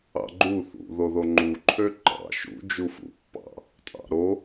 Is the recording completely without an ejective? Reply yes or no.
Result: no